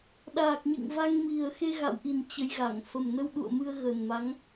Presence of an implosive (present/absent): present